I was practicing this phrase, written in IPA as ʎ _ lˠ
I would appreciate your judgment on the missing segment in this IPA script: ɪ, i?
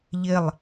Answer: ɪ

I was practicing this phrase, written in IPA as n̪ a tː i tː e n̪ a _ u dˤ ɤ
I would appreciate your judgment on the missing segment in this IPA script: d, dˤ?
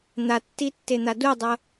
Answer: d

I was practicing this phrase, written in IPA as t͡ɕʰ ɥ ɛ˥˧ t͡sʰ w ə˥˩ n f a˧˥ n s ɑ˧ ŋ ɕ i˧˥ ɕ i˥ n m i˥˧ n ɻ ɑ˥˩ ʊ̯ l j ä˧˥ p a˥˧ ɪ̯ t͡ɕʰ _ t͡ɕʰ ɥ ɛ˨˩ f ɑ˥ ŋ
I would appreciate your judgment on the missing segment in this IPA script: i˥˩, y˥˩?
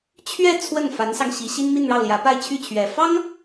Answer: y˥˩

